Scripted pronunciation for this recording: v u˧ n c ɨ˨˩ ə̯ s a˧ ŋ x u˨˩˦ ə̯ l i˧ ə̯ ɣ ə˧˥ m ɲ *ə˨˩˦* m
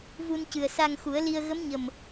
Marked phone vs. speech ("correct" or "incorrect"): incorrect